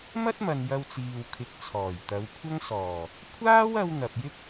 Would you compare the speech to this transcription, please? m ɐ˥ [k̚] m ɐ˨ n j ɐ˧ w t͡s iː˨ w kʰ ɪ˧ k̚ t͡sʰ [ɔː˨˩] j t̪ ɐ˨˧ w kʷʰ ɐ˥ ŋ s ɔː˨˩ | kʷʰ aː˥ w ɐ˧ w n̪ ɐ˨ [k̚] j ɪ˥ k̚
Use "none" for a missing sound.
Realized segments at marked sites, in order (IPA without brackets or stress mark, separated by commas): t̚, ɔː˨˩, p̚